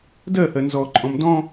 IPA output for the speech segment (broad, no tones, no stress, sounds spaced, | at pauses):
d ɜ h ɜ n z ɔ ǃʼ ɔ̃ m d ɔ̃